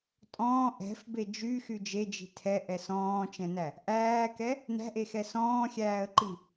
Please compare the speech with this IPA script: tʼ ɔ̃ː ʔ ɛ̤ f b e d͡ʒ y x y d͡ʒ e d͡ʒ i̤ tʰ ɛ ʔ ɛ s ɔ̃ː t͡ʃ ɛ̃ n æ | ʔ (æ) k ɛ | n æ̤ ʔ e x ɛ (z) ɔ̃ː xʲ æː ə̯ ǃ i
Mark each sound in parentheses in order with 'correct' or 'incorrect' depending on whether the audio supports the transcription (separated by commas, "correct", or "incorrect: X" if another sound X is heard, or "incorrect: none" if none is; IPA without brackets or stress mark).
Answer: incorrect: æː, incorrect: s